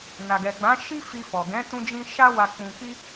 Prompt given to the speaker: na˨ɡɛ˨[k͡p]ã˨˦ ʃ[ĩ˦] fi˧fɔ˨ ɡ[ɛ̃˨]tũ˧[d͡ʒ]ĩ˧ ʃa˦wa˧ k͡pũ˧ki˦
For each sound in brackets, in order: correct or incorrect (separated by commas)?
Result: incorrect, incorrect, incorrect, correct